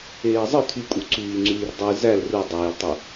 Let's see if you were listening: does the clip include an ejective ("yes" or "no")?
yes